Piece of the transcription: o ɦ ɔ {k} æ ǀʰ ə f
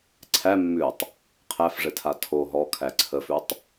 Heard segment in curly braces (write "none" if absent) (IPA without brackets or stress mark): kʰ